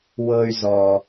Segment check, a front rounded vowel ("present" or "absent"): present